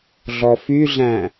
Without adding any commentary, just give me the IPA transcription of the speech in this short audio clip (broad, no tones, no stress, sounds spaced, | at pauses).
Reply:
ɮ ɔ f y ɮ æ̃